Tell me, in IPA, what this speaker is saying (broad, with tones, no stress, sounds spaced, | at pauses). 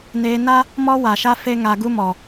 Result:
n eː˧ n a˦ | m ɔ˦ w a˨ ʃ a˦ f e˦ ŋ a˧ ɡ u˦ m ɔ˨